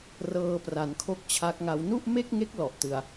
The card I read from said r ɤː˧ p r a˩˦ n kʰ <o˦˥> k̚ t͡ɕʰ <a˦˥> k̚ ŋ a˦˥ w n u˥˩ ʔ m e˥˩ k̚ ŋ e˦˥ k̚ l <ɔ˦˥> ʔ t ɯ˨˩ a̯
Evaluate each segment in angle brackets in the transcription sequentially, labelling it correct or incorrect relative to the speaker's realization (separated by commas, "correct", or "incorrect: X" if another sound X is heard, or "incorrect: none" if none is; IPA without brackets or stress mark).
correct, correct, incorrect: ɔ˨˩